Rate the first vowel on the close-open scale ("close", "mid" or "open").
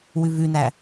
close